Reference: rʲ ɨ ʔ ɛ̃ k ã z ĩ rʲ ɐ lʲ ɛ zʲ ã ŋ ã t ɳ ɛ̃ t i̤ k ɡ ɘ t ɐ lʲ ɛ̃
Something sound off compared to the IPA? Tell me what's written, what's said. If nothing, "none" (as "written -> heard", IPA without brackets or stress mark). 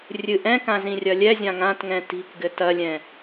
ɳ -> ŋ